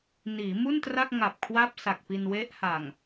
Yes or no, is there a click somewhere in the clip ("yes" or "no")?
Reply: no